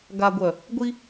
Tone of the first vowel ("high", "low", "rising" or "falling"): low